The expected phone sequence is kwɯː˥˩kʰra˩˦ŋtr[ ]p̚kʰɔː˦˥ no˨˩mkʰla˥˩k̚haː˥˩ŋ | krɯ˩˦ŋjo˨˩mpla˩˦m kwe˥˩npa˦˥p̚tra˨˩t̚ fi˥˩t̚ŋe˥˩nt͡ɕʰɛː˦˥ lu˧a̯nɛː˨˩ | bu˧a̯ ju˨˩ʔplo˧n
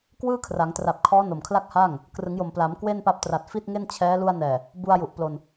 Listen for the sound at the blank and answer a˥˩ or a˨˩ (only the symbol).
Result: a˨˩